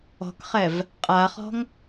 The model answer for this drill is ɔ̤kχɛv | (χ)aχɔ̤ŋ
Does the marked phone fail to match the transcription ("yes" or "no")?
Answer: yes